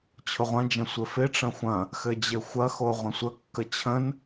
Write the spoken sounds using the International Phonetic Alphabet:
t͡ɕʰʊʁʷɐ̃d͡ʒɐ̃ sʷɘfɪʈ͡ʂɐ̃ xʷɐ̃ | xɘd͡ʑɘxʷɐxo ʁʷə̃sʷəkːə t͡ɕʰə̃n

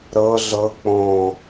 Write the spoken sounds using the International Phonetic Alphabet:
ɾɤ ɮɤ k͡põ

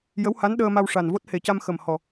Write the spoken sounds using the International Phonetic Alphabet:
jə˧˥wha˧˥nɗəː˧ma˧w ʂa˨˩n vo˦˥t̚he˨˩ca˧m xə˨˩m hɔ˨˩

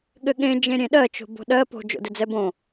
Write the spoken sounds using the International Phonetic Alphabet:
ɠɘɠẽ d͡ʒẽɾʲẽɗɜ t͡ʃo̤bo̤ɗɜ po̤ d͡ʒo̰dɘd͡zɛbõ

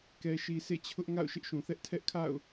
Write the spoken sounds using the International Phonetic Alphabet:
kɛ˨ʃi˨ sʰḛ˦˨t͡ɕʰʊ˦ʔ ŋa̰˦˨ʊ̯ʃɪ˦ʔʃũ˨θɛ˦ʔ tʰɛ˦ʔkʰa̰˦˨ʊ̯

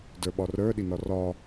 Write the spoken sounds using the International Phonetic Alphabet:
də˞ɓɒrə˞ ɗinɒrɒ

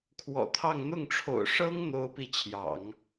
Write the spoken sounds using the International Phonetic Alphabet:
kʰwɔ̰˨˩t̪ʰɑ˥˧ŋ n̪ʊ˥˩ŋʈ͡ʂʰo̰˨˩ʊ̯ ʂɤ˥ŋ n̪o˥ʊ̯pi˥˩ t͡ɕʰjɑ̰˨˩˦ŋ

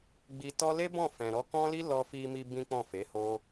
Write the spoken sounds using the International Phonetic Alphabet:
ɡ͡bi˧tɔ˦ le˦bɔ̃˦˨ fɛ̃˨ɾɔ˨˦kɔ̃˦li˦ lɔ˧fi˧mi˧ bĩ˦k͡pɔ̃˦˨fe˨˦ho˦

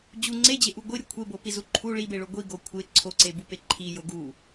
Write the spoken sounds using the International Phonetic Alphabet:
d͡ʑu ŋ͡ǀed͡ʑeʔu ɡʷiɾʲu kʷʰebopizu ǃʰu ɭibeɭo ɡʷiɡo kʷʰe ǀʰoǀebupe ǃʰijo ɡu

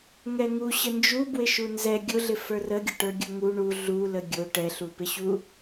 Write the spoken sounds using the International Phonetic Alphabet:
ŋɛŋu ɕənd͡ʒubwɪ ʃunzɛ ɡʲʊɮɪ fə˞rəɡʲə ʈə˞ɡʲʊŋu ɳu ɮulə ɡʲʊ ʈɛɬupɪɕu

